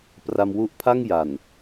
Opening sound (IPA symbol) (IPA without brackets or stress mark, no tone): p